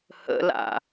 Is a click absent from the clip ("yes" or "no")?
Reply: yes